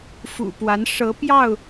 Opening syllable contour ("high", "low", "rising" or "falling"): low